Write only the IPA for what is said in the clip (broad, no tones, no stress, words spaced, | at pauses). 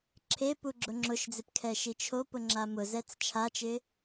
ǁʰe puɡ͡ǁʊŋ͡ǁʊʃd͡zɪp kʰɛʃit͡ʃʰopʊ ŋ͡ǁamʊzɛt͡s t͡ʃʰat͡ʃɪ